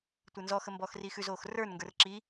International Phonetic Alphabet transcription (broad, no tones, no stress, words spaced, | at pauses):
tʷə˞nzɔ xəmbɔːxriːxʉz oːxrə˞n ŋɡə˞rǁi